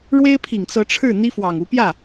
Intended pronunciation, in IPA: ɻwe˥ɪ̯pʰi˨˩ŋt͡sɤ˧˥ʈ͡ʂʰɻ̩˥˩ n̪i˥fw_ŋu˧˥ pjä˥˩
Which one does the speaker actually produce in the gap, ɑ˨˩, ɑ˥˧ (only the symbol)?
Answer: ɑ˨˩